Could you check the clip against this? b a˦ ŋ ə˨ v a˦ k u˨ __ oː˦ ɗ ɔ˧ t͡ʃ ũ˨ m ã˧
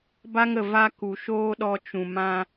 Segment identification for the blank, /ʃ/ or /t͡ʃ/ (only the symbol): ʃ